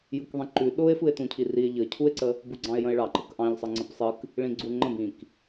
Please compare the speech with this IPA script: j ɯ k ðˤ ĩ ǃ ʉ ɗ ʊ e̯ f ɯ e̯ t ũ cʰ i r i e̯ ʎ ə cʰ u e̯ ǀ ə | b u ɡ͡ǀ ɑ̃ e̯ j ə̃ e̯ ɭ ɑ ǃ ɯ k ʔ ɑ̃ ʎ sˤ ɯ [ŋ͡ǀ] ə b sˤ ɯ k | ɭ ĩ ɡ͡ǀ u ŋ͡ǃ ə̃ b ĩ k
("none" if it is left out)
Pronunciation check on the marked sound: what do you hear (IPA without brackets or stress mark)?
ŋ͡ǀ